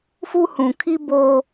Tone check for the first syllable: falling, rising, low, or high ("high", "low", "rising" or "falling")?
high